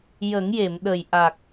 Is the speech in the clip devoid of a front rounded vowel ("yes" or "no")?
yes